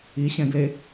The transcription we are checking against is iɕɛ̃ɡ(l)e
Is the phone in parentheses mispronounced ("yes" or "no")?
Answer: no